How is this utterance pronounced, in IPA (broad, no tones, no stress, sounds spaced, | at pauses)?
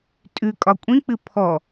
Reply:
tʼ ʉ kʼ ɒ kʷʼ ĩ k͡p ɨ pʰ ɔ